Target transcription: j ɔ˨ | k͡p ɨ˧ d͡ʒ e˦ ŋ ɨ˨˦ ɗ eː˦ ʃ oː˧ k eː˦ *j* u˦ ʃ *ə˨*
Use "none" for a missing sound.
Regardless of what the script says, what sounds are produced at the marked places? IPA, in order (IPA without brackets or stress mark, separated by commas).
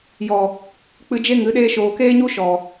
ɲ, ɔ˨